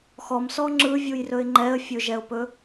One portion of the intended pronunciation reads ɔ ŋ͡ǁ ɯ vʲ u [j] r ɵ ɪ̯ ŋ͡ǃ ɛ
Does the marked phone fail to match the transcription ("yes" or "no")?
no